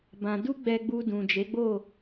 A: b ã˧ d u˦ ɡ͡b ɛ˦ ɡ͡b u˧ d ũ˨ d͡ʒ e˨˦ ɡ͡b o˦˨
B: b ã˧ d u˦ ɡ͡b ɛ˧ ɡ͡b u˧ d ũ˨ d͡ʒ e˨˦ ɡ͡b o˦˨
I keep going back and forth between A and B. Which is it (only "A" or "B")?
B